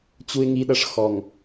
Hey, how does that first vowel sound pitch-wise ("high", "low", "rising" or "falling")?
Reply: low